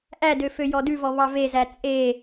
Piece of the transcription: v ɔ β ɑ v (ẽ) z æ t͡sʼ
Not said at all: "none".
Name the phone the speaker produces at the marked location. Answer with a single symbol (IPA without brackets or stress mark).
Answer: e